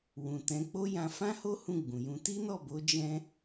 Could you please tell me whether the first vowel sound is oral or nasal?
nasal